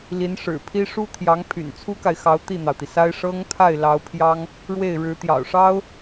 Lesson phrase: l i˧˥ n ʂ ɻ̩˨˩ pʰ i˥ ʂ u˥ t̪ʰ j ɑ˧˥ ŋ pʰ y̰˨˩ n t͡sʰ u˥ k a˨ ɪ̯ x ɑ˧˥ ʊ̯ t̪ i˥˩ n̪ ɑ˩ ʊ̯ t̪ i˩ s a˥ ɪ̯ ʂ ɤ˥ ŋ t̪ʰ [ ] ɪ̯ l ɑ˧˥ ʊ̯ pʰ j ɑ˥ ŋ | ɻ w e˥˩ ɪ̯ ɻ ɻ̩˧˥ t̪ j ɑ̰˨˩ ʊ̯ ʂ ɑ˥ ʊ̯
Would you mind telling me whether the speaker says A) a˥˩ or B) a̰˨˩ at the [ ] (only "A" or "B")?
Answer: A